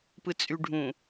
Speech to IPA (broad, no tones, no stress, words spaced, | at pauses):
pɯt͡sʼyɖʱũ